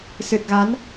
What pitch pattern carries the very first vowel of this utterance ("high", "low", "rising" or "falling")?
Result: low